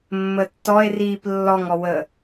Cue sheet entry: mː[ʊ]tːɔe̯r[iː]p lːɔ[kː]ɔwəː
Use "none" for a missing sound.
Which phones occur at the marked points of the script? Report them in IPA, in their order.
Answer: ə, iː, ŋ

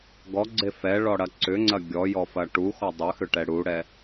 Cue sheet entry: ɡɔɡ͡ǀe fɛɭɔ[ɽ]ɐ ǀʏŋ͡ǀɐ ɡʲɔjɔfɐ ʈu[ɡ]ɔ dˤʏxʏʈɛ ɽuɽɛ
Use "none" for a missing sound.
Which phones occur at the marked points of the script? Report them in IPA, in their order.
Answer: ɽ, x

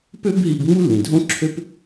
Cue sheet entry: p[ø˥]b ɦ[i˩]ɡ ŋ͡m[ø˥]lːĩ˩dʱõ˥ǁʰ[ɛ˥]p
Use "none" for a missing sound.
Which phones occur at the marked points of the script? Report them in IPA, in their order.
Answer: ø˥, i˧, u˥, ø˥

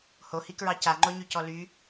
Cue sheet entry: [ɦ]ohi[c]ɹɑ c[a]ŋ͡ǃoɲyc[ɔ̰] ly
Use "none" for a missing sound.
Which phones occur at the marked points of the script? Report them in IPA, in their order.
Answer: h, k, a, ɔ

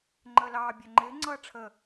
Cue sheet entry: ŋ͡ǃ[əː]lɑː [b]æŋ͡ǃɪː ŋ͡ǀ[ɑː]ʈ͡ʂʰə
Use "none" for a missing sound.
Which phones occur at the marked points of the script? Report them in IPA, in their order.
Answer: əː, bʲ, ʌː

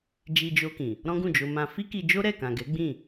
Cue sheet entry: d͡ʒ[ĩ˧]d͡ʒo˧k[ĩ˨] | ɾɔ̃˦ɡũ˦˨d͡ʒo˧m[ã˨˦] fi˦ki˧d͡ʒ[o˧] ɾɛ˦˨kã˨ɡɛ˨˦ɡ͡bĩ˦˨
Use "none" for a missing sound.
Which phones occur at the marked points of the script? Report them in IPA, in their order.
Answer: i˧, ĩ˨, ã˧, o˦

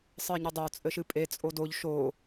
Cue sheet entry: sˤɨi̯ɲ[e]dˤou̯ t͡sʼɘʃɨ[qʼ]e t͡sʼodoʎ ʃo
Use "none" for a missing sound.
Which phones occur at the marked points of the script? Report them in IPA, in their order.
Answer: ɘ, pʼ

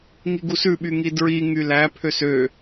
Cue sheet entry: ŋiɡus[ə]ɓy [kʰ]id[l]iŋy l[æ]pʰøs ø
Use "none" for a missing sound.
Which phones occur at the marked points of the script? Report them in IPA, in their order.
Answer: ʉ, ŋ, ɹ, æ

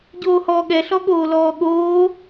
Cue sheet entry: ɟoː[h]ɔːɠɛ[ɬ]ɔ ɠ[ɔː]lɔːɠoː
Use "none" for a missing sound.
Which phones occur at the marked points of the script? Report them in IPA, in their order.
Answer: h, ɬ, oː

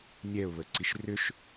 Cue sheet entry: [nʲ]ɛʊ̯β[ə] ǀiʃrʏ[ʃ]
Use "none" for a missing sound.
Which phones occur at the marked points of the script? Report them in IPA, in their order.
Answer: nʲ, ə, ʃ

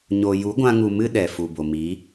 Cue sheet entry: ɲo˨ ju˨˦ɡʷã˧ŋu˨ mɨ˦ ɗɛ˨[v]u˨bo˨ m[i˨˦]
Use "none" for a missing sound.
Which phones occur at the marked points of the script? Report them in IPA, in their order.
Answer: f, iː˨˦

